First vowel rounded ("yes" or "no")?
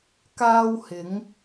no